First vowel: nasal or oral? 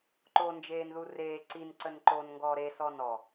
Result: oral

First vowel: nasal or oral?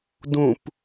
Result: nasal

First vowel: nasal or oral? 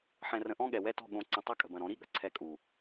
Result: nasal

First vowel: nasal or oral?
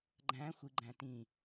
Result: nasal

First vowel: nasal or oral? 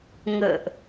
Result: oral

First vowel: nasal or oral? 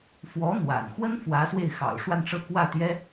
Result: oral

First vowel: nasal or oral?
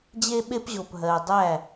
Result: oral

